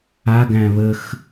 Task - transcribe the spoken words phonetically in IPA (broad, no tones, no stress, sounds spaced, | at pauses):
a ɡ æ̃ β ə x